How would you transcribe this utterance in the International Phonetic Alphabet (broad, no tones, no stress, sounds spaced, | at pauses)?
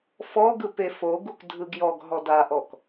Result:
f ɔ ɡ ɯ p e f o ɡ u k dʱ ɯ ɡ j ɔ ɡ ɦ ɔ d a ʔ ɔ k